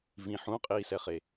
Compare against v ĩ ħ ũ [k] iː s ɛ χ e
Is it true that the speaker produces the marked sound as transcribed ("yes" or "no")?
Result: no